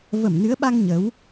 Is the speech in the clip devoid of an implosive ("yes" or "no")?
no